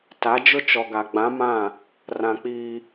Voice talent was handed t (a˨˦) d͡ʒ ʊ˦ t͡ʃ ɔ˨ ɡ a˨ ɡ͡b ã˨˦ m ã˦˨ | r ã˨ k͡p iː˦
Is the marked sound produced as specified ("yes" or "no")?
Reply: yes